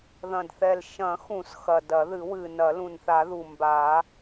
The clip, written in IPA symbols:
ðɐ̃˨˩dθɛ˨˩l ʃɐ̃˨˩˦xũ˨˩˦s xɐ˨˩dɐ˨˩˦ðɨ˨˩˦wɨ˨˩ nɐ˨˩˦lũ˨˩nθa˨˩˦ðu˨˩ mba˨˩˦

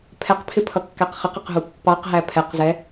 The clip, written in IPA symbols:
pʰɛqpʰɪpʰʌkːæq χɪqɪqɦu pːɑqɦæ pʰɛqzɛ

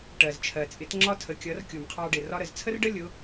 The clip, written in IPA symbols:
ʈɜ˩zt͡ʃʰɜ˩t͡sʼɪ˩˥t ŋ͡ǁɒ˥tʰə˩˥kʲʌ˩˥r kʲu˩mqʰɑ˧ɖɪ˩ rɒ˧ɾə˩zt͡sʰə˥rɖə˥ lʲʊ˩˥

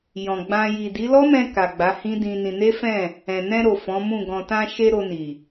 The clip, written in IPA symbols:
jɔ̃˨ɡ͡bã˧ ji˨di˨˦lɔ˦mɛ̃˧ ka˨ɡ͡ba˨˦hĩ˦dĩ˧ nĩ˧ ne˦fɛ̃˦˨ | ɛ̃˨ nɛ̃˧ɾo˨ fɔ̃˨˦mũ˦˨ ɡɔ̃˨tã˧ʃe˧ ɾo˧ni˨

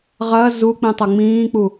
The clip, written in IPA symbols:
ʁɐ zu k͡pĩtˤɐŋ͡mĩːk͡pu

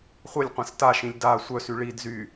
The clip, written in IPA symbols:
χʷəlʲ qʷɛ̃staʃĩlʲ da sʷœsy ɭid zy

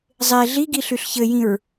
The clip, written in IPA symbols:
zˤe ɮiɡi ɬyɬçɘjĩɹ

